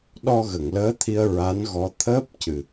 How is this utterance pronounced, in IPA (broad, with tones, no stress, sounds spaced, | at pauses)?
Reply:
ɗ ɔ˧ ɣ ə˨˩˨ ŋ l əː˧˥ t̪ʰ i˧ ə̯ ɹ a˧˥ n ɣ ɔ˧˥ t̪ʰ əː˦˥ p̚ c ɨ˨˩